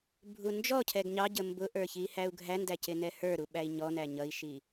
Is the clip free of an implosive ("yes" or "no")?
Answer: no